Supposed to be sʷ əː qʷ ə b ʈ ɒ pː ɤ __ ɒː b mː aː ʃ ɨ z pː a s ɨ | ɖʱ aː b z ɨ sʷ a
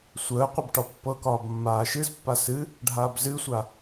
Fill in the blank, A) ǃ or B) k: B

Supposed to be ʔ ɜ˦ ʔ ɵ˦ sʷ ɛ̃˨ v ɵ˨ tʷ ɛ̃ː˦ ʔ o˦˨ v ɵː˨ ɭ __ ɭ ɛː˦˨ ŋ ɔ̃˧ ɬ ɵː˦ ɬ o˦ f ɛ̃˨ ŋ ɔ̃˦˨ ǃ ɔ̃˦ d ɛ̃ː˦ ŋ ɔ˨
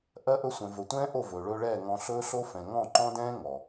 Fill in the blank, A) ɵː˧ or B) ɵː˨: A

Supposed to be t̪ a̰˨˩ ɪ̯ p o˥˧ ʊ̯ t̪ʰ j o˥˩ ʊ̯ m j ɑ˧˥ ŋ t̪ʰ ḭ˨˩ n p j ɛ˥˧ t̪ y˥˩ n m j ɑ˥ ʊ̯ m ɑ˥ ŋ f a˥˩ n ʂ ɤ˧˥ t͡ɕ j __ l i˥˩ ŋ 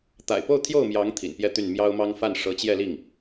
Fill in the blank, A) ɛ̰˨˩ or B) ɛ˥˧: B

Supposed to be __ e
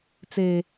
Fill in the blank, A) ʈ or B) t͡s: B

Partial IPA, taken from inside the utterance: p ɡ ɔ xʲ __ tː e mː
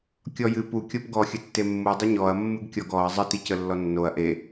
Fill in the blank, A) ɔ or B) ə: B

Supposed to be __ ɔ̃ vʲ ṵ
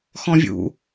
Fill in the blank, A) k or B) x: B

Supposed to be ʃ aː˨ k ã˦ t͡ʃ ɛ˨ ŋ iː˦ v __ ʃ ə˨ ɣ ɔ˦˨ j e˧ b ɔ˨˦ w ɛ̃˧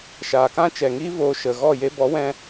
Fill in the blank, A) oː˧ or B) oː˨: A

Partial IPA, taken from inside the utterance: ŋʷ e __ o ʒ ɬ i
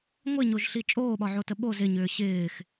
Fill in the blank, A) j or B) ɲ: B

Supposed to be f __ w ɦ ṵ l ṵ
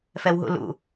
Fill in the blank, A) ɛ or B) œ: A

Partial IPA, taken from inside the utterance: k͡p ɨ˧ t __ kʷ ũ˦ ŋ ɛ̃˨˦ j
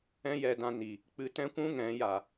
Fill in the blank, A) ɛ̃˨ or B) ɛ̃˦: B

